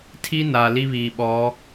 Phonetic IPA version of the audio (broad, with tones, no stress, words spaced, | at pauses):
tʰi˦na˨ li˦βiː˨ɓɔ˨˦